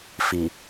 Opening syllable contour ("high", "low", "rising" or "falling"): low